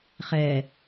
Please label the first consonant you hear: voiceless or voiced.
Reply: voiceless